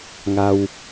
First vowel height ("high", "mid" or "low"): low